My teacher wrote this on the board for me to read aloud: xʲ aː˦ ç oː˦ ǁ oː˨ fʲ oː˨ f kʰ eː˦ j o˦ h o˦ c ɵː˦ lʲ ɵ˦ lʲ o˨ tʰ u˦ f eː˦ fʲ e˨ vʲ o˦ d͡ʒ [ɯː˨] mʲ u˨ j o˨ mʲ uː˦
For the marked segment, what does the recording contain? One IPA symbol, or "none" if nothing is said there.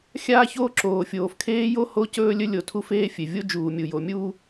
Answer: uː˨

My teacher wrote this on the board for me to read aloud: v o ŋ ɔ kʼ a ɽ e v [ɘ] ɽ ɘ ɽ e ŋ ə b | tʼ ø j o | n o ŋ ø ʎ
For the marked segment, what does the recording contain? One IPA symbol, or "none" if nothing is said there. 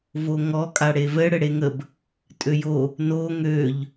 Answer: ɘ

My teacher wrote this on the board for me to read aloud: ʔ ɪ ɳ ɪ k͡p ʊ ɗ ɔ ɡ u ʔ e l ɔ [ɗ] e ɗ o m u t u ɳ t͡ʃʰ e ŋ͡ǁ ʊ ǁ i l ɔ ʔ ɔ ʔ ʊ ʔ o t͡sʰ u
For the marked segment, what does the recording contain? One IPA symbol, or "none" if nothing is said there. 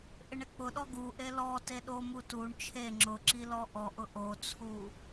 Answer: t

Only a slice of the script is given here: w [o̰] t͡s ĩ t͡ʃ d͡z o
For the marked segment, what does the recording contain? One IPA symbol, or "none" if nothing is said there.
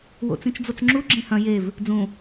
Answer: o̰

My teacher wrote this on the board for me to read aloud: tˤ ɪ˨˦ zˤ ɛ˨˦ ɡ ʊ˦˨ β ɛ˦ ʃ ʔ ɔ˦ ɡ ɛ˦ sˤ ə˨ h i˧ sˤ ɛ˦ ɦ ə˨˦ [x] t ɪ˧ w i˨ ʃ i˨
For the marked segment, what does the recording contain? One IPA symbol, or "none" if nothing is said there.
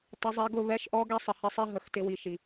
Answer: x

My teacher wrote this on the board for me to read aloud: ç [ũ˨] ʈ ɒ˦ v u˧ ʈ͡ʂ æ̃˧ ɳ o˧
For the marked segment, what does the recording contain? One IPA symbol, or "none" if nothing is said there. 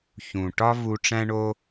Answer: ũ˨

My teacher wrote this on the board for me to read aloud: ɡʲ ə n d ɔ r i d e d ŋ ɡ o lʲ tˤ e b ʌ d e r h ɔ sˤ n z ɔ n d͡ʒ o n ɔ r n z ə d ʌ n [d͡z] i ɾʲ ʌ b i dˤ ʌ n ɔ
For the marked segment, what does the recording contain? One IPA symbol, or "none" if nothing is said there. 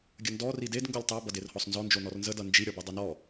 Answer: d͡ʒ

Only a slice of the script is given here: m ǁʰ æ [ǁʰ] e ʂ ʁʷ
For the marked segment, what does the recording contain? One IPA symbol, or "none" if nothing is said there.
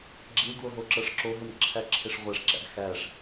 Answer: ǁʰ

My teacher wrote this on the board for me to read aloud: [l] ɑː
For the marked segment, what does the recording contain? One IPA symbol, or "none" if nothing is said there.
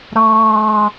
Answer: ɾ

